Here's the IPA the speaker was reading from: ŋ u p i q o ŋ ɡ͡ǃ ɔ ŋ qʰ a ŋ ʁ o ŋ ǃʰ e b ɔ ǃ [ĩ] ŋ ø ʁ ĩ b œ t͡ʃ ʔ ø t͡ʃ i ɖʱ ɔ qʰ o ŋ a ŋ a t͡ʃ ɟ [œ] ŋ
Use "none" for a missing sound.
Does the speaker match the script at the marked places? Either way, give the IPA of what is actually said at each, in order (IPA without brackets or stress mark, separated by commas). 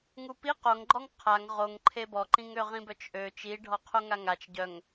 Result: ĩ, œ